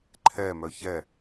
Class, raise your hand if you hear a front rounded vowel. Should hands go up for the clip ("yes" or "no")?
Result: yes